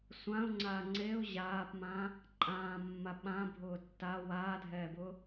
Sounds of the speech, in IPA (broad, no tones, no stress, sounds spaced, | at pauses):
sʷ ã ʊ̯ ŋ͡ǀ aː ŋ͡ǀ e ʊ̯ ʑ aː p m ãː | ǃʼ ãː mː a ɓ ã bʱ ʊː tː a w aː dʱ ɛː b ʊː